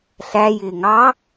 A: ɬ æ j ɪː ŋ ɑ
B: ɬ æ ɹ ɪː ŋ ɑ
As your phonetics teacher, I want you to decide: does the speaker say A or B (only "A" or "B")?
A